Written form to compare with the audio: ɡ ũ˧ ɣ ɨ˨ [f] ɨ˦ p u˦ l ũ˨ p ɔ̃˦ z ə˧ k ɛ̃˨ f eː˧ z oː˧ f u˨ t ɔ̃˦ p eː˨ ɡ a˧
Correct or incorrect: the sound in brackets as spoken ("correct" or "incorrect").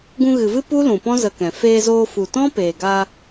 incorrect